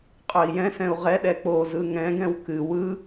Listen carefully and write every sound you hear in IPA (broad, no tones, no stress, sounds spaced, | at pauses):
qʼ œ i̯ j ɛ̃ s ɛ̃ u̯ ʁ ɛ ɗ ɛ k͡p o z ɯ ŋ ɛ̃ ɡ ɛ̃ w k ɨ w ɯ